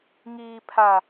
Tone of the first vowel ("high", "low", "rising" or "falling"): low